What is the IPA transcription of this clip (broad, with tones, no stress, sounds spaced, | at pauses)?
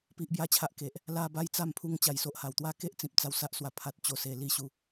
p i˦ ʔ b j a˦ t͡ɕʰ a˦ ʔ k e˨ ʔ | l a˦ b a˦ j t͡s a˥˧ m pʰ u˧ ŋ t͡ɕ a˨˩ j s o˨ ʔ h a˨˩ w t̪ w a˥˧ k e˦ ʔ t͡s ĩ˨ p̚ t͡s a˧ w s a˦ ʔ s w a˨˩ pʰ a˨ t̚ t͡ɕ o˨˩ s e˨˩ l i˥˧ ɕ u˨˦